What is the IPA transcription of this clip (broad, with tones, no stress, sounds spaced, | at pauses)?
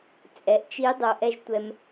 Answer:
t͡sʼ ɛ˩ ʔ t͡ʃ i˧˥ dˤ o˧ ʔ ɛ˥ ʒ tʷ ɛ˧ m